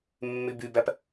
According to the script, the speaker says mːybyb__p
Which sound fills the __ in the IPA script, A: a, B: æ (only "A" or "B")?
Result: B